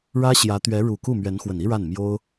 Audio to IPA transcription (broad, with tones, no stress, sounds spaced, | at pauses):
ɻ ä˥ ɕ j ä˧˥ t̪ ɥ ɛ˧˥ ɻ u˨˩ k u˥˩ m ɥ ɛ˧˥ n x w ə˨˩ n i˥ ɻ a˥˩ n m j o˥ ʊ̯